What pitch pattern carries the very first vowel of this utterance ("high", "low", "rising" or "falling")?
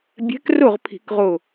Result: rising